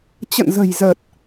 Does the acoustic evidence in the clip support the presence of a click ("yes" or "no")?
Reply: no